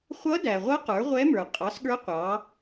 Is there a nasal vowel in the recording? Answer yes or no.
no